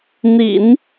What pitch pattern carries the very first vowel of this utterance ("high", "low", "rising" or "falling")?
low